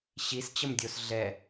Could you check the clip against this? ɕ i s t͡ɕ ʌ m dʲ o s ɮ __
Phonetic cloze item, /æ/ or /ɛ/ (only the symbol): ɛ